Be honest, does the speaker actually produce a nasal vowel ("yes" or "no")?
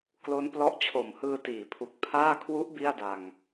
no